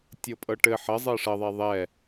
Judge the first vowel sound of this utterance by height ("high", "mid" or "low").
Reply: mid